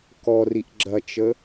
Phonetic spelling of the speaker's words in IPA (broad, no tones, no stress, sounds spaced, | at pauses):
k ɔ r i ʔ ɡ͡ǁ ɐ t͡ʃ ə